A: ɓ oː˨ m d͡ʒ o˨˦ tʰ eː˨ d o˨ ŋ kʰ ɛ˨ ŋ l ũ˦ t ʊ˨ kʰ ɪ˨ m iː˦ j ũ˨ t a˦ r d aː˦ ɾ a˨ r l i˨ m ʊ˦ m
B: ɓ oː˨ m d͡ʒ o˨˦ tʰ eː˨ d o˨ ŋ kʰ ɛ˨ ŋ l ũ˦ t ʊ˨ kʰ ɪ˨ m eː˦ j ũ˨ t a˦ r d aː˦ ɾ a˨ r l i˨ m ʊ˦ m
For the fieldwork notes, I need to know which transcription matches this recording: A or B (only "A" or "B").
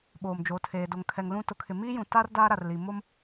A